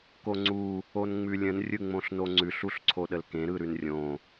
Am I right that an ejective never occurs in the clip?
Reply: yes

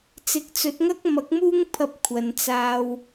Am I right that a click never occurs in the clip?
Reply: yes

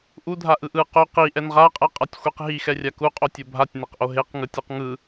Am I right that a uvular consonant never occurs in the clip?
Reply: no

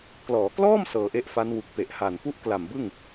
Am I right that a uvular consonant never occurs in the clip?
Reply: yes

